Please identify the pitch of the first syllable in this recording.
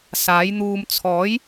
rising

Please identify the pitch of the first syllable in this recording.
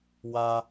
high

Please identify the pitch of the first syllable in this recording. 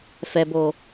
low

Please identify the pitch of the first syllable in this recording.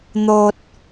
low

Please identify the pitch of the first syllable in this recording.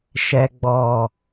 low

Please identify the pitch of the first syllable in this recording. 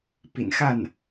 low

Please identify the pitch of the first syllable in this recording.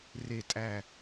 low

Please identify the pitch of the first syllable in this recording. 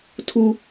high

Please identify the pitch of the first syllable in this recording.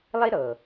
high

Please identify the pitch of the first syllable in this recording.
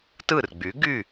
falling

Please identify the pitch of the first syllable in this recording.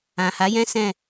low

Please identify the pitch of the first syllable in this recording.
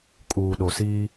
low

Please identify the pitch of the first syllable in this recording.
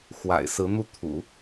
low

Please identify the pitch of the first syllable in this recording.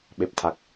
low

